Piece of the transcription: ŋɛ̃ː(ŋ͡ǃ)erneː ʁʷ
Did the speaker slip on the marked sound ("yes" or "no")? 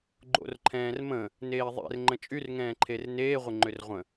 yes